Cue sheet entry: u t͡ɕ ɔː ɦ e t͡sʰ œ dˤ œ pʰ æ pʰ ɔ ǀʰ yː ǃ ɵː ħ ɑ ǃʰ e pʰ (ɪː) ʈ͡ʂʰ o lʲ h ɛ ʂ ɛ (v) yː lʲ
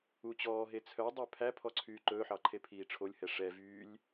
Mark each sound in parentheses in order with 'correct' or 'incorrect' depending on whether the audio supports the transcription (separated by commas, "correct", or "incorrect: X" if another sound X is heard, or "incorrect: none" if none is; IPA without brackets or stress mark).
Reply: incorrect: iː, correct